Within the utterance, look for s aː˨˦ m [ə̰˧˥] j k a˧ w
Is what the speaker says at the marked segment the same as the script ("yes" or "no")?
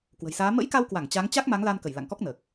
yes